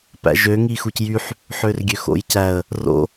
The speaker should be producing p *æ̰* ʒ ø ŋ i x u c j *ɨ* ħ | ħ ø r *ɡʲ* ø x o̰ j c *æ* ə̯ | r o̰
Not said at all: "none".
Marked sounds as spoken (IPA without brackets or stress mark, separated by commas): æ̰, y, ɡʲ, æ